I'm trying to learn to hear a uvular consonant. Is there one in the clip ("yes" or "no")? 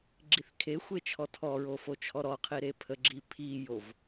yes